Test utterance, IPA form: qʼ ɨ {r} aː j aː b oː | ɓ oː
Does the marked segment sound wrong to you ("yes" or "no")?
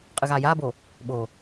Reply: yes